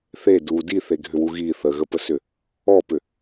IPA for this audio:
θ e d u d i θ e ɡʱ ʏ w u ɣ i θ ə ɣ ə p ə s ʏ | ɔ p ʏ

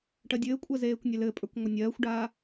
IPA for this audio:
ʈ ɜ dʲ ɘː kʷʼ ɜ z eː kʷ nʲ e l ɘ pʼ ə˞ kʷ ŋʷ ɐ nʲ ɜː xʷ ɖ aː

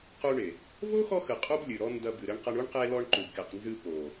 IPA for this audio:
q u˧ ɳ e˨ | v o˦ x ɔ˧ x ɨ˨ qʼ u˦ b lʲ ɨ˨ ɾ ɔ˦ n d ɐ˧ b ɨ˨ ɾ ɘ˦ ɳ q ɐ˦ ɳ u˦ ɳ q e˧ l ɔ˧ ɳ ǃ u˨ b k e˨ q n z ɨ˧ p o˨

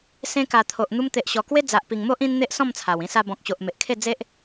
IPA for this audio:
s ẽ˧ k a˨˩ t̪ʰ o˨ ʔ n̪ u˧ m t̪ e˨ ʔ ɕ ɔ˨˩ k w e˦ d͡z a˨ ʔ p i˨˩ ŋ m o˦ ʔ ĩ˦ n n̪ e˦ ʔ s ɔ̃˥˧ m t͡sʰ a˨˩ w ĩ˧ s a˧ b ɔ̃˨ k̚ ɕ o˨ ʔ m e˨ ʔ kʰ e˥˧ d͡z e˦ ʔ

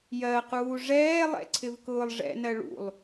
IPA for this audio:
j ɜ q uː ʐ ɛː lˠ ɛ̰ ǀʰ ɪ v k ʊː lˠ ʐ ɛ̰ n ɜ ɭ ṵ lˠ

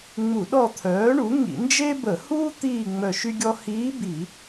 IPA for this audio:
ŋ͡m u˧˩˧ ɗ ɔ˦˨ t̪ʰ œː˩˥ ɳ u˩˥ ŋ ḭ˧˩˧ n d͡ʒ e˥ b ə˧˩˧ h uː˥ t̪ iː˦˨ ŋ͡m œ˦˨ ʃ y˥ ɡʲ ɔ˥ h iː˧˥ b iː˧˩˧

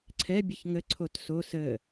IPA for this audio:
ǀʰ ɛ bʲ ə ç ŋ ə ǀʰ o t s o s ə

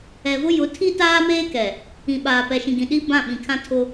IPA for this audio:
ɛ˨ v ʊ˦ j ʊ˨˦ tʰ i˦ t aː˦ m eː˦ k ɛ˨ | ĩ˨ ɓ aː˨ p ɛ˨ ʃ ĩ˨ ɡ ĩ˨ ɗ i˦ b ã˦˨ ɓ ĩ˨ kʰ ã˦ tʰ ʊ˦

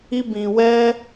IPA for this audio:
i˦ b ĩ˧ w ɛ˦

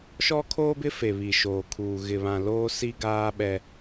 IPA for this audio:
ʃ ɔ˦ kʰ oː˦ b ɪ˦ f e˨ β i˨ ʃ oː˨ kʰ uː˨ ɣ ɪ˨ β ã˨ l oː˦ s i˦ ɡ aː˦ ɓ ɛ˦

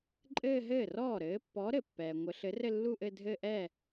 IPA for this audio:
ǃʼ ɘː˥˧ ɦ ɘː˥˩ r ɔː˥˩ ɾ ɘː˨˥ pː ɔ˨˥ ɾ ɘ˩ pː ɛː˩ ŋʷ ɘ˨˥ ɬ ɘ˨˥ r ɘ˥˧ lː u˥˧ ʔ ɘ˥˧ dʱ ɘ˥˧ ʔ ɛ˥˩

